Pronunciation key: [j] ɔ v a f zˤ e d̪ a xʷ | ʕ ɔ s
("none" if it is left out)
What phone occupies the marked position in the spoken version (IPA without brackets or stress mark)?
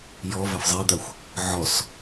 j